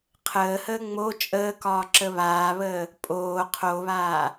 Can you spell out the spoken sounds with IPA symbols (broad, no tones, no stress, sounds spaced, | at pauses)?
qʰ əː h əː ŋ͡m o t͡ʃʼ əː k ɒː ǁ ə β aː β əː | pʼ oː qʰ o β aː